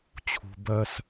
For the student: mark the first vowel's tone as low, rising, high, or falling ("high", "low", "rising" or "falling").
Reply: low